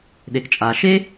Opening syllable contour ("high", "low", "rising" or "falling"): low